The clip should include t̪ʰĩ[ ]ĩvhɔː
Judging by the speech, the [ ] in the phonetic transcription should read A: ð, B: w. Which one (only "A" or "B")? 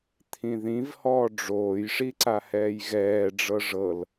A